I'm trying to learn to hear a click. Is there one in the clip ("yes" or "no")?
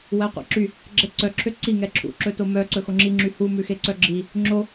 yes